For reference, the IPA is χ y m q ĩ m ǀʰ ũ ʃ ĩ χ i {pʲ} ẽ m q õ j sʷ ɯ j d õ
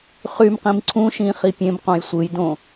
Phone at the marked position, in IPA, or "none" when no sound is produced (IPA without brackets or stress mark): pʲ